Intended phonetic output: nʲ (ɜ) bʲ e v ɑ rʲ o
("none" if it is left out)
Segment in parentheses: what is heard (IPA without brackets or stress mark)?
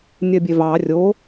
ɜ